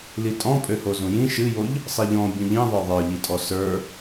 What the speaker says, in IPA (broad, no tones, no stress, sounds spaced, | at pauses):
l i tʼ ɔ̃ pʼ ø h o z ũ j ĩ ʃ ɨ j o ʎ | sˤ i ʎ ɔ̃ bʲ ũ ʎ ĩ ðˤ ə˞ ðˤ ə˞ ʎ i tʼ ɔ s ə˞